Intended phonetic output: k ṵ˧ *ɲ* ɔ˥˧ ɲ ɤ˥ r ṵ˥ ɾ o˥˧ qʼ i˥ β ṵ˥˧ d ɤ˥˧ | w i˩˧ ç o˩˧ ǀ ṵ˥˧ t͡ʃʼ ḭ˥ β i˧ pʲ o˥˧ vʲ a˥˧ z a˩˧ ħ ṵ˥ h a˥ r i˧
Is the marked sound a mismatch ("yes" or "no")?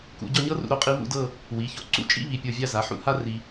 yes